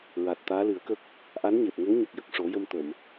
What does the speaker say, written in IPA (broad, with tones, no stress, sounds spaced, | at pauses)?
ɹ a˨˩ t̚ t̪ aː˧˥ l ɨ˨˩˦ ə̯ k ə˦˥ k̚ | ʔ a˧˥ n ɲ e˨˩ p̚ ŋ ə˧˥ ŋ ɲ ə˨˩ k̚ j ə˨˩ k̚ ʂ o˨˩˦ j ə˧ m t̪ ə˨˩˨ m